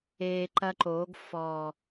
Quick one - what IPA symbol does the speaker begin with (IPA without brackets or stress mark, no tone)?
eː